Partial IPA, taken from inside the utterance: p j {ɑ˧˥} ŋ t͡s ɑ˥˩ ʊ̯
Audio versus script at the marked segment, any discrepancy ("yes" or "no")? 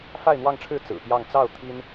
yes